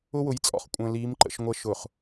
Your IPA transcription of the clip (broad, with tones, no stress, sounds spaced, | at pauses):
ʊ˦ w ʊ˨˦ j t͡sʼ ɔ̰˨ χ kʷʼ ə̃ː˨ l iː˨˦ m ǃ ə̰˨ ʃ ŋʷ ə˨˦ ʃ ʊ˨ χ